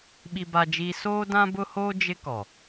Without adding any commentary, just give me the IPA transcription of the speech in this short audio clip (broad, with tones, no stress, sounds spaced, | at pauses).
ɓ i˦ b a˦ d͡ʒ iː˦ s oː˦ d ã˦ b ʊ˦ h oː˦ d͡ʒ ɪ˦ k ɔ˨